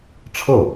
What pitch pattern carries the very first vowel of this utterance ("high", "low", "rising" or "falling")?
falling